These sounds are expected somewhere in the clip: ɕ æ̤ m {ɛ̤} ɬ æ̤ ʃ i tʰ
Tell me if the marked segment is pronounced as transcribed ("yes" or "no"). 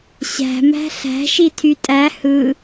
no